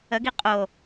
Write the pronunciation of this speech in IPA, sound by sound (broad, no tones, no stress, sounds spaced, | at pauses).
ə ɡ i qʼ o